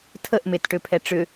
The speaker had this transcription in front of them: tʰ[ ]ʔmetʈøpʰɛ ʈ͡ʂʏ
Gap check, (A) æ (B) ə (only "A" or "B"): B